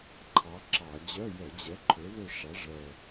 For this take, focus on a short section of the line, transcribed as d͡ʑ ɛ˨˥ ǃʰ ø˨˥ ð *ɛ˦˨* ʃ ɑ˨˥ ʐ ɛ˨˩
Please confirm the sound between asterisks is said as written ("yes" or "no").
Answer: no